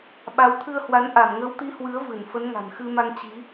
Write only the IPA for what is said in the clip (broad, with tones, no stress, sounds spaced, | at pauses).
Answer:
ɓ a˨˦ w t̪ʰ ɨ˧ ə̯ h w a˨˦ n ʔ a˧˩ m ŋ ə˨˦ w t̪ i˨˦ h w ɨ˨˦ ə̯ v ɨ˧˩ n f ə˨˦ n ŋ a̤˨˩ n x ɨ˧ m a˧ ŋ t͡ɕ i˨˦